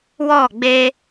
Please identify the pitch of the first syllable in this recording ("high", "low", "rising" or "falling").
falling